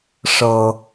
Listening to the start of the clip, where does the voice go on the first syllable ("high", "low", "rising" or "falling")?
low